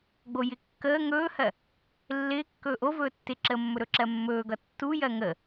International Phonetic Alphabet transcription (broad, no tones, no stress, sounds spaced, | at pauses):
ɡ͡b o j ɪ kː əː ŋ ɵː h ɜ | lː ɪː kː ɵː ʔ o v ɵː tː ɪ ǁ əː mː ɵ ɾ ɵ ǁ ɜ mː ɵː ɡ ʌ tː u j ɜ ŋ ə